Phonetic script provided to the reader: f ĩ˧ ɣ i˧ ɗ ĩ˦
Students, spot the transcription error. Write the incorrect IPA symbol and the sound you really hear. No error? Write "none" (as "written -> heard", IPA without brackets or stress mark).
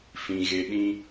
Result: i˧ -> e˧